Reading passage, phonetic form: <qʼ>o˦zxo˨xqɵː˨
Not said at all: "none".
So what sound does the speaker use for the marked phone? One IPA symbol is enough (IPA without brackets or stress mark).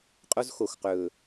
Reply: qʼ